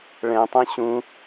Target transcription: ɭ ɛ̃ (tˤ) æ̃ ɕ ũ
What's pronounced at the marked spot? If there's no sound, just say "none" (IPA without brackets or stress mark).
tˤ